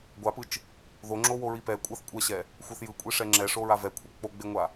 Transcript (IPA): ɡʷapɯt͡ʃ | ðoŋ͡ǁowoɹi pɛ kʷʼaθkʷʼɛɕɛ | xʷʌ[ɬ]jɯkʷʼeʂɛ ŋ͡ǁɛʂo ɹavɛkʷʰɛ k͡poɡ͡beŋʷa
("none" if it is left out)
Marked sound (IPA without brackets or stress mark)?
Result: θ